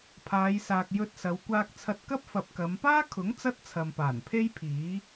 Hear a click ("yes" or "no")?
no